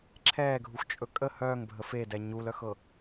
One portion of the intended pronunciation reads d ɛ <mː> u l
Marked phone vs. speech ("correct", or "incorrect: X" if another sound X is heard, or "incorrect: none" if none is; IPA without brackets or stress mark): incorrect: ɲ